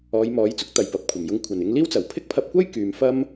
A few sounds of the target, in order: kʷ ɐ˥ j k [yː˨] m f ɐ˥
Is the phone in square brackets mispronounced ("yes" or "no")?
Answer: no